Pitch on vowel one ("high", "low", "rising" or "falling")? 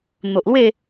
low